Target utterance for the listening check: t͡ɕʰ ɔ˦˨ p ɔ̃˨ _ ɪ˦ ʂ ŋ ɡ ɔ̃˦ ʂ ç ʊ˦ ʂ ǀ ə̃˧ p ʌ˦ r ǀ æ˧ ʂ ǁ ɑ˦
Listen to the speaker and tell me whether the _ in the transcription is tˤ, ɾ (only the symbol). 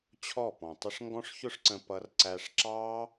tˤ